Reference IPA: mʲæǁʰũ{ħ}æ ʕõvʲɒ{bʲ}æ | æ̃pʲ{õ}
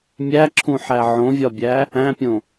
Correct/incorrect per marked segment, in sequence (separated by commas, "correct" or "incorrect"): correct, correct, correct